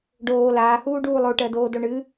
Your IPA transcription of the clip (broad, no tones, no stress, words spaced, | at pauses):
ɖoː laːhuːɖuː lˠoʈɜdoːdo ɳɨ